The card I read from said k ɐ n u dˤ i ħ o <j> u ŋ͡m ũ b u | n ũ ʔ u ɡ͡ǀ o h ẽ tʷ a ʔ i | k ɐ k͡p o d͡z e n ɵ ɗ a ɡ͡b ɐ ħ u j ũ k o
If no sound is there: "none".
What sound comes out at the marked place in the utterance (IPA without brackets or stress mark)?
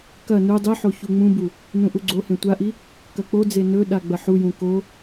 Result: ç